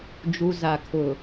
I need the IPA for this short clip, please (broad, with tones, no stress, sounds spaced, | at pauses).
d͡ʒ u˨ z a˨ kʰ ʊ˨